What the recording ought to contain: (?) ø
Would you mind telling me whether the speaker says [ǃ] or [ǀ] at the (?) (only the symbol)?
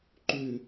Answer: ǃ